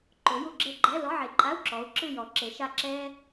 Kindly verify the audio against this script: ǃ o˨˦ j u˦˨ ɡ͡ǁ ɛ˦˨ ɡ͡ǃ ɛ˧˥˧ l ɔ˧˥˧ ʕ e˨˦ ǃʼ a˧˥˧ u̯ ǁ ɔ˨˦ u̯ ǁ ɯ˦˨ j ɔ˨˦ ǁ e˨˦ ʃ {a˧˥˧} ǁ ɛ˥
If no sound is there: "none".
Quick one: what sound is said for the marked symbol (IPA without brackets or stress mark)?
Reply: a˦˨